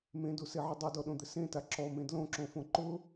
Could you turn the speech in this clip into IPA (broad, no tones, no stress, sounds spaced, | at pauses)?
m ẽ d u s e ʕ ʊ dˤ u d ɔ ɗ õ d̪ ɪ s ẽ t a ǁ ɔ m ẽ d l õ ǁ õ f õ ǃ ʊ